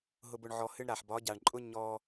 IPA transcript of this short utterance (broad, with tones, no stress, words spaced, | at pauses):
ɦʊ˧bʊ˧ɳʕɔ˧ hɨ˧ɳ ɾa˨ħbɒ˨˦ɟa˨ɳǃʼʊ˦ ɲɔ˧